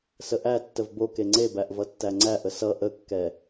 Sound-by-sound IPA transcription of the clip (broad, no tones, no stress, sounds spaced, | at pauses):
s ə ʔ æ tː ə v b o k e ŋ͡ǀ e b æ ʔ v ʌ tː æ ŋ͡ǀ æ ʔ ə s ʌ ʔ ə kː ɛ